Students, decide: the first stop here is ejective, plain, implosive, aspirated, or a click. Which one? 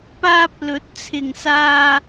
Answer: plain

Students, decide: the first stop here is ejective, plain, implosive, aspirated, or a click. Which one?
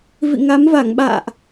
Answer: implosive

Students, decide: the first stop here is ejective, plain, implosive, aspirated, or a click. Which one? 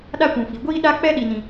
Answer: implosive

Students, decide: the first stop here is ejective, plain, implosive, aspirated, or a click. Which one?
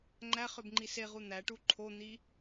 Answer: click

